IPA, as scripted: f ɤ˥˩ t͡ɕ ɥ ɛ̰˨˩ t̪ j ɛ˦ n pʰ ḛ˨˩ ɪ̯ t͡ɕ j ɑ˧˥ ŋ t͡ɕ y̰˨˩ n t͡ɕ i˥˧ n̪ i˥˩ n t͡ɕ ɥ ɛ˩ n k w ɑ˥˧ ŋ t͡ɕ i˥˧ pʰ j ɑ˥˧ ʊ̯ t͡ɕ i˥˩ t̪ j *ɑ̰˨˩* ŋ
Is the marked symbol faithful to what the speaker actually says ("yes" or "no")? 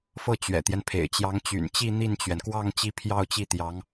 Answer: no